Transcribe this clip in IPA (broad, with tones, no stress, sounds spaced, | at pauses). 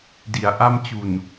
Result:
d i˩˦ a̯ ʔ a˥˩ m t͡ɕ u˨˩ n